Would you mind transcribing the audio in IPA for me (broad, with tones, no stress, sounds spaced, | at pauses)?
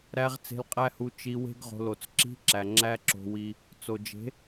ɾ æ˧ ʁ t͡s e̤˧ l qʼ æ˦ h u˧ t͡ʃ i˧ w e̤˦ ɡ ʁ o̤˧ l o˨ t͡s ǁ i̤˧ ǁ æ˨ ŋ͡ǁ æ˦ ǁ o̤˧ w i˧ | t͡s o˨ d͡ʒ e̤˨˦